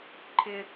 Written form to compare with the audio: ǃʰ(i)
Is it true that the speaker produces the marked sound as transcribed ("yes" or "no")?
no